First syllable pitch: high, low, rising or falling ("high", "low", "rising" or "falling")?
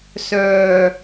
low